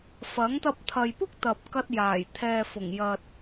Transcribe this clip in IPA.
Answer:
f ɐ˨˥ ŋ t̪ ɐ˧ p̚ t̪ʰ ɐ˨ j p ʊ˥ k̚ t̪ ɐ˨ p̚ k ɐ˧ t̚ j aː˨˩ j t̪ʰ ɛː˨ f ʊ˨˩ ŋ j ɐ˨ t̚

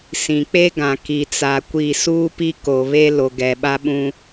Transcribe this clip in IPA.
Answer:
s ĩ˨ k͡p e˦ ɡ ã˨ k i˨ t͡s a˨ kʷ i˦˨ s uː˦ p i˦ k o˨ β e˦ l o˨ ɡ ɛ˨ ɓ a˦ ɓ ũ˦

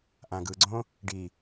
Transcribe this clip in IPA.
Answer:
ʔ ã ɡ ɯ ɡ͡ǀ õ | ɖ i

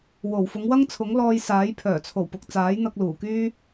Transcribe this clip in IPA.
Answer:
w o˨˩ w f ʊ˨˧ ŋ w ɐ˥ ŋ t͡sʰ ʊ˨˥ ŋ l ɔː˧ j s aː˨˥ j pʰ œː˨˩ t͡sʰ o˨˩ w p ʊ˨ k̚ t͡s aː˨˥ j n̪ ɐ˧ k̚ l uː˨˩ k yː˥

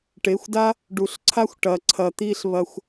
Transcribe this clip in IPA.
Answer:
ʈ e˨˦ xʷ d a˦ | ɖ u˨ ɬ ǀʰ a˦ xʷ ʈ ɐ˨ ǀʰ ɐ˨ t̪ i˧ ɬ β ɐ˧ xʷ

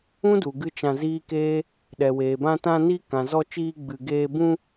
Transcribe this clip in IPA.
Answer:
ũ˦ d u˨ ɡ ɨ˧ t͡ʃ ã˧ z iː˦ k eː˦ | ɗ ɛ˨ w eː˨ b ã˧ t ã˧ n i˧ k ã˨ z ɔ˧ t͡ʃ iː˧ ɡ͡b ɨ˧ ɡ eː˧ b ũ˧

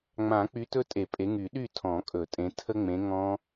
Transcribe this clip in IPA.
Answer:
ŋ͡m ã˨˩˦ k͡p y˨˦ t ɵ˦˥ tʼ e˨˩˦ pʼ e˨˦ ŋ y˨˩˦ ɗ y˥˨ tʰ ɔ̃˨˩˦ kʼ ɵ˨˩˦ tʼ ẽ˨˦ tʰ ə˦˥ ŋ͡m ẽ˨˦ ŋ ɔ̃˦˥

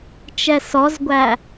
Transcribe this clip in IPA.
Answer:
t͡ʃ ɛ s ɔ z ɡʷ æ

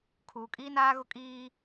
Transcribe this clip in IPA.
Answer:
kʰ uː˨ kʼ iː˦ n aː˦ ɣ ʊ˦ kʼ iː˦

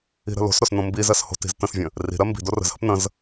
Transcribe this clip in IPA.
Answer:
i̤ ɾ ə̤ l o̤ s ɾ o s n õ m b i z ɜ s h o̤ t i̤ z t ə̃ s vʲ ə̃ | r i̤ ɾ ɜ m b i̤ d o r ə̤ z h ə̤ p n ə̃ z

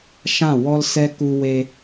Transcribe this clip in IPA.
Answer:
ʃ ã˦˨ w ɔ˦ l s ɛ˦ k u˧ w e˧

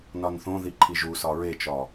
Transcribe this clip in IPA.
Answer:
n ɒ n θ õ ð i ǃʰ i ʒ u s ɒ ɹ e t͡ʃ ɒ

